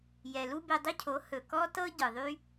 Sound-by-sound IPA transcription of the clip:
j ɛ˨ l u˦ b e˧ dˤ ɵ˦ cʰ o˨˦ h ɵ˨ k ɔ˦ t ɤ˦ ɟ ɯ˨ ðˤ y˦

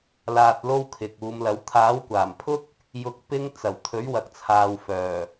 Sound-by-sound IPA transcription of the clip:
l aː˧ t̚ l o˥ w kʰ ɪ˨ k̚ uː˨˧ m l ɐ˨˥ w t̪ʰ aː˨˥ w kʷ aː˨˩ m pʰ ʊ˥ k̚ | j ʊ˧ k̚ p ɪ˥ ŋ t͡s ɐ˨˩ w t̪ʰ ɵ˨˥ ɥ w ɐ˨ k̚ t͡sʰ aː˨ w f œː˨˩

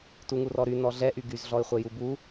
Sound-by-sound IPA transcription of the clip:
t u ŋ u r ɔ ɾ y n ɔ ɮ ɛ ʔ y ɡ y z ɮ ɔ ɪ̯ χʷ ɛ j u b u

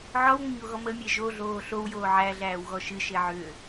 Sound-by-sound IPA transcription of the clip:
ʕ ɔ w ŋʷ ə ɲ o ɣ ɔ m ə mʲ e ʒ o ɮ oː ɬ o w j oː ʕ æ ɮ æː w ɣ ɔ ʃ ɨ ʃ e ʕ ʏː

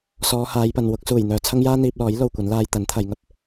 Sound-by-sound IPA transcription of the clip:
s ɔː˨˧ h aː˨˧ j p ɐ˨ n w ʊ˨˥ k̚ s uː˨˩ j n̪ œː˨ t͡sʰ ɐ˥ ŋ j aː˥ n̪ iː˧ p̚ l ɔː˨˥ j l o˨ w kʷ ɐ˨˥ n l aː˧ j t̪ ɐ˨˥ n t̪ʰ ɐ˨˧ j ŋ ɐ˨ p̚

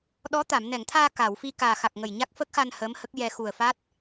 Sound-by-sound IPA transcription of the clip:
ɗ ɔ˧˥ t̪ a˨˩˨ m n ɛ˨˩˨ ŋ t̪ʰ aː˧ k a˨˩˨ w f i˧ k aː˨˩ x a˨˩ k̚ ŋ ə˨˩ j ɲ a˦˥ k̚ f ə˦˥ k̚ x a˧ n h əː˧˥ m h ə˦˥ k̚ j ɛ˧ x u˨˩ ə̯ f a˦˥ t̚

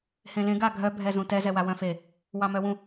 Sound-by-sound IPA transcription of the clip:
h ẽ l ẽ ɡ a ɡʱ œ bʱ ɛ z ũ t ɛ z ɛ w a w œ̃ f e | w ɑ m œ w ũ

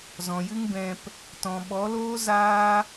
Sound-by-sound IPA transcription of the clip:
z ɔ̃˨ j ɨ˦ ŋ b ɛ̃˧ p | t ɔ̃˨ ɓ ɔ˨˦ l oː˦ z aː˦

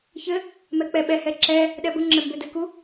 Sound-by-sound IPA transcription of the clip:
ç ɘ | m ɛ k͡p ɛ ɓ ɛ h ɛ ǁ ɛ | ɗ ɛ b ə ŋ͡ǁ ɘ m b ø d ɘ k u

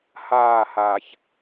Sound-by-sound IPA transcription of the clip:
h aː˦˨ h aː˨ ç

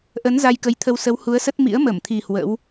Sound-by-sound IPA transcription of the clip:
ʔ ə˨˦ n z a˧ j k ə˨˦ j t̪ʰ ə˧ w s ə˨˦ w h u˨˦ ə̯ s ə˦˥ t̚ m ḭ˧˥ ə̯ m ə˧˩ m t̪ʰ i˨˩ h w ə̰˧˥ w

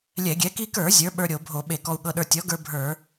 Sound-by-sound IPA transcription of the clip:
lʲ ɛ˧˩˧ ɡʲ ɛ˩˥ k i˧ k ə˞˧˩˧ zʲ ə˞˩˥ ɓ ə˞˧ ɾʲ o˧˩˧ bʱ o˧˩˧ ɓ e˧˩˧ k ɔ˧ u̯ ɠ ɤ˧ ɗ ə˞˧ tʲ ɔ˩˥ ɡ ə˞˧ bʱ ə˞˧˩˧

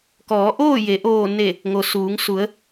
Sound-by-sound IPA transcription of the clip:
k ɔː˩˧ ʔ oː˥˨ j e˩˧ ʔ oː˧˩ n e˧˩ | ŋ o˩ s uː˩˧ ŋ s u˩˧ ə̯

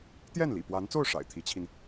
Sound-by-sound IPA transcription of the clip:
t̪ j ɛ˥˩ n l ḭ˨˩ p w a˧˥ n t͡s o˥˩ ʊ̯ ʂ a̰˨˩ ɪ̯ t̪ʰ i˧˥ t͡ɕʰ i˧ n

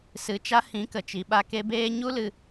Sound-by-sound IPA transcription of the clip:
s ɨ˨ t͡ʃ a˧ h ĩ˨˦ k ə˨ t͡ʃ i˨ ɓ a˧ k e˧ b eː˦ ɲ u˦ l ɨ˧

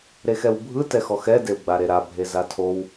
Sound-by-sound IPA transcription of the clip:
ɾ e x ɛ w bʱ ɯ t ɛ x ɔ x ɛ d e w ɡ͡b a ɾ e ɾ a bʱ e z a tʰ o w

